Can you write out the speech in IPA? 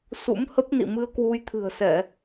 s ṵ˧˥ m h ə˦˥ p̚ n ḭ˧˨ m ɨ˧ ə̯ k w u˧ j t̪ʰ ɨ̤˨˩ ə̯ s ɛ˧˩˨

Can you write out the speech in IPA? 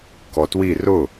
k ɔ t w i r ʊ

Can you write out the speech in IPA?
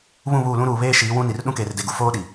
β ũ˦˨ β uː˦˨ l ũ˦ ɾ uː˨ β eː˦ ʃ iː˨˦ w ũ˦ n i˨ r ɗ ũ˦ k eː˨ r d e˨ ɡ u˨ f oː˦ ɗ i˨

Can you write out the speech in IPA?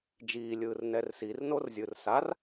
d͡ʒ iː lʲ ɯː r n ɛ r s i r n o r zʲ ɯ r s a r

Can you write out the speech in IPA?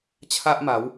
t͡ɕʰ a˦ ʔ m a˨˦ w

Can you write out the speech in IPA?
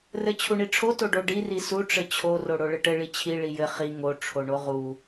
r ɘ t͡ɕʰ u ɳ i ʈ͡ʂʰ o t o ɖ o ɖ i r i s u ʈ͡ʂ ɘ t͡ɕʰ o r o ɽ o ɭ ɘ ʈ ɘ ɭ i t͡ɕʰ i ɭ i j ɘ χ i ŋ o ʈ͡ʂʰ o ɳ o ʁ u

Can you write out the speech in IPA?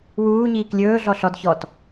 w uː ɲ iː k lʲ ɵː ɮ ɔ ɬ ɔ d ç ɔ t

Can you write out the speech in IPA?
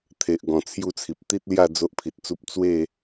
t̪ʰ e˨ ʔ ɡ ɔ̃˨˩ t͡sʰ j u˥˧ t͡sʰ i˨ p̚ t̪ i˦ t̚ l j a˥˧ d͡z o˦ ʔ pʰ i˨ t̚ t͡s u˦ p̚ t͡s w e˥˧

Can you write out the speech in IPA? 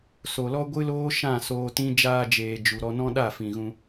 s o˨ l ɔ˦ ɡʷ ɨ˦ l oː˦ ʃ ã˦˨ s oː˧ t ĩ˦ d͡ʒ aː˧ d͡ʒ eː˨ d͡ʒ u˨ ɾ ɔ˧ n ɔ̃˦ ɗ a˦˨ f ĩ˨ ɣ ũ˧

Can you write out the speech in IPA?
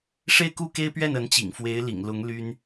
ʂ e˥˧ ɪ̯ k u˥˩ k e˥ ɪ̯ p ɥ ɛ˥˩ n ə˧˥ n t͡ɕ ḭ˨˩ ŋ f w e˧˥ ɪ̯ l ḭ˨˩ ŋ l ʊ˧˥ ŋ l y˥ n

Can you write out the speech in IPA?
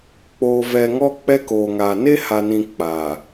k͡p oː˨ v ɛ˨ ŋ ɔ˦ k͡p ɛ˦ k oː˨ ŋ aː˨ n e˦ h a˨ n ĩ˨ k͡p aː˨

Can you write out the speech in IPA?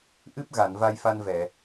ʔ ɨ˦˥ p̚ ɣ a˨˩˨ n v a˧ j f a˧ n v ɛ˨˩˨

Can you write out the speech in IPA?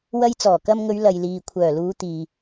w ɐ˧ j t͡s ɔː˨˩ k ɐ˧ m ŋ ɵ˨˧ ɥ l ɐ˨ j l iː˨ kʷʰ œː˨˩ l uː˨˧ t̪ iː˨

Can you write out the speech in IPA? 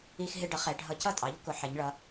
i˦ x ɦ ɪ˦ ɖ ʌ˩˥ χ ɛ˩˧ ɖʱ ʌ˧˩˧ c ʌ˥˩ tʼ ɑ˩˥ ʎ k ʊ˩˥ ħ ɛ˩˧ ɲ ɭ ʌ˩˧

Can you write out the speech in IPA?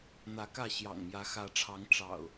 n̪ ä˨˦ k ä˥˨ ɕ j ɑ̰˨˩ ŋ m j ä˨˦ x ä˨˦ ʈ͡ʂʰ ɑ˨˦ ŋ ʈ͡ʂ ɑ̰˨˩ ʊ̯

